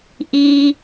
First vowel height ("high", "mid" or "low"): high